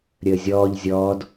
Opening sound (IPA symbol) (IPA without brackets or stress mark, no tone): ɾʲ